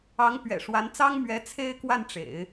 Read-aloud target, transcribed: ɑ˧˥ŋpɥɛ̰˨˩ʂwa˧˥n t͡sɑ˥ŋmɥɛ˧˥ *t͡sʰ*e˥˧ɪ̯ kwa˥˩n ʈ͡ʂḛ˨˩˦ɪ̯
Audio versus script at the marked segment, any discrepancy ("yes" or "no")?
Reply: no